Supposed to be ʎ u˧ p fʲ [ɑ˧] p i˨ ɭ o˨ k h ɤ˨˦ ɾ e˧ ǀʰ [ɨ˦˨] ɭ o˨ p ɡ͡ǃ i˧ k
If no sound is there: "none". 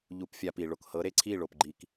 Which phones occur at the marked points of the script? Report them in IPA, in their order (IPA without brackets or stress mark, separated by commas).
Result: a˧, i˦˨